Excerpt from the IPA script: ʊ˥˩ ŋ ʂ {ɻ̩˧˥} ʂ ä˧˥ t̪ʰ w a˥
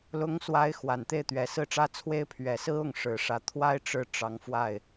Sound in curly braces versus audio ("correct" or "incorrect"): incorrect